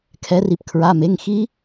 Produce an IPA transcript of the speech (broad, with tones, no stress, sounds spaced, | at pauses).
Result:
kʰ ɛ˩˧ r i˩ p kʰ ɹ a˩˧˩ m e˩˧˩ ŋ x i˦˥